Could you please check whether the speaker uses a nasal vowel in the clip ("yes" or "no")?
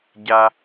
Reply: no